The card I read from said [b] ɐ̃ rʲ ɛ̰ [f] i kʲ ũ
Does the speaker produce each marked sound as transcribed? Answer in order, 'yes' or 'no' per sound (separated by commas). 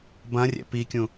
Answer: yes, no